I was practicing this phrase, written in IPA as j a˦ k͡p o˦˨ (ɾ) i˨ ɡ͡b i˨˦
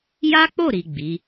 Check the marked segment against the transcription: correct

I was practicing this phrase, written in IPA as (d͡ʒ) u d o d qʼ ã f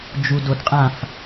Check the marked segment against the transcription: correct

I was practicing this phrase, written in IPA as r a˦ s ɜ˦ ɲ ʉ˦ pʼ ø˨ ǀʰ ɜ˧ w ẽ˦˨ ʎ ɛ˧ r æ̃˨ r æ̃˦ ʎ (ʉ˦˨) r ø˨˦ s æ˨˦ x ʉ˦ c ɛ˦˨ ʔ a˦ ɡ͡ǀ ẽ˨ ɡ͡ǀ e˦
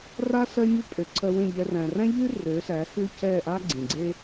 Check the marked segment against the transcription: incorrect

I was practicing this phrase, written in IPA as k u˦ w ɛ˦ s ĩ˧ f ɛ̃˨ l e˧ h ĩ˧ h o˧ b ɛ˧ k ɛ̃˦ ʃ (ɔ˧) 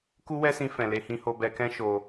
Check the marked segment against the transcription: incorrect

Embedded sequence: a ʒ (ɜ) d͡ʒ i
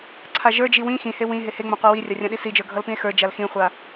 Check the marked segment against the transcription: incorrect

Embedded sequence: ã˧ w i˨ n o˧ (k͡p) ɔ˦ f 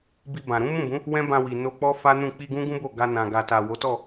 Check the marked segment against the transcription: correct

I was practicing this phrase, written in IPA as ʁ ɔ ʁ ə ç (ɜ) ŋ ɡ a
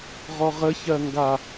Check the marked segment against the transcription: correct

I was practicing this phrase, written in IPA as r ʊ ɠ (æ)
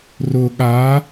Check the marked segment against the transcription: incorrect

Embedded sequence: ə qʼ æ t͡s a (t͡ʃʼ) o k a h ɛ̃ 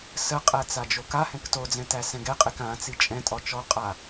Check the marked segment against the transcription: incorrect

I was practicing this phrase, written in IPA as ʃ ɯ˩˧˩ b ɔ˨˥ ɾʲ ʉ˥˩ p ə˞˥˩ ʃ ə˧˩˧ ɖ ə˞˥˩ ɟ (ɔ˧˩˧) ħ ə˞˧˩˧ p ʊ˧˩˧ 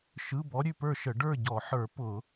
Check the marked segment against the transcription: correct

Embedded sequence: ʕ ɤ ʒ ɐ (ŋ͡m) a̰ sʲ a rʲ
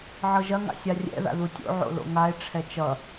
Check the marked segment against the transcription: incorrect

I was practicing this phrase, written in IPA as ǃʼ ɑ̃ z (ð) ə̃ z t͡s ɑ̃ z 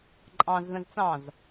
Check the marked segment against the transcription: correct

